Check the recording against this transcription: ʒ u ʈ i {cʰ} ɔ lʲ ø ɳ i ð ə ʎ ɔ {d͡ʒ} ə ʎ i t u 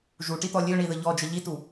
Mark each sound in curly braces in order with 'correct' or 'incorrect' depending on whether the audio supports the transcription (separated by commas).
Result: incorrect, correct